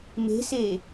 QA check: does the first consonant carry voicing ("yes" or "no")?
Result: yes